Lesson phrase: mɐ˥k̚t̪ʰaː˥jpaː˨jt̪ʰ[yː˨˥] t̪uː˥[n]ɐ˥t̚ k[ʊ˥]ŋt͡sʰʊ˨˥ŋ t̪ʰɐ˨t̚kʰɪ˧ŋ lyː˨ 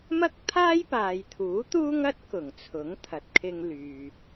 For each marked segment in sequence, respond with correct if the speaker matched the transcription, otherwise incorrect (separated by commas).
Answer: incorrect, incorrect, incorrect